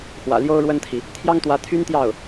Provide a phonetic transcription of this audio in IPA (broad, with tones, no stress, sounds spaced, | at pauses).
x w ä̰˨˩ l j o˥ ʊ̯ ɻ w ə˥ n t̪ʰ i˨ | t̪ʰ j ɑ˥ ŋ t̪ w ä˧˥ t̪ʰ y˥ n t̪ j ɑ˥˩ ʊ̯